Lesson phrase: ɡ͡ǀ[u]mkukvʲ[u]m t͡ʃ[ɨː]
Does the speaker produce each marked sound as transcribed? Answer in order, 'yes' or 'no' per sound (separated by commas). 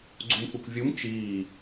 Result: yes, yes, no